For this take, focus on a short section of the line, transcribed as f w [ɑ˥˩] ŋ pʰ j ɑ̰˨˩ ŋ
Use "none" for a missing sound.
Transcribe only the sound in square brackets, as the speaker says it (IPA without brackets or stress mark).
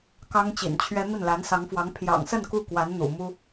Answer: ɑ˧˥